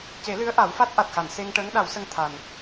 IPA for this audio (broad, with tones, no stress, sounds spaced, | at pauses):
c e˨˩˦ l ɨ˧˥ ə̯ ʔ a˨˩˦ w f a˦˥ t̚ ʔ a˨˩ t̚ x a˨˩˨ n s e˧ ŋ ʈ əː˧˥ ŋ ɗ a˨˩˦ w s ə˧ ŋ t̪ʰ a˨˩ n